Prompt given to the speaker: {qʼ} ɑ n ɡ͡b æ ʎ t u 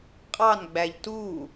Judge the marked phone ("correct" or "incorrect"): correct